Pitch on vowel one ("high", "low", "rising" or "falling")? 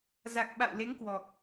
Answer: low